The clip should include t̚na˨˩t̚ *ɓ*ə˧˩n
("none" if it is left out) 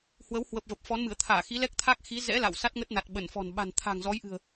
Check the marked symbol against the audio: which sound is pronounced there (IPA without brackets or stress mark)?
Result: ɓ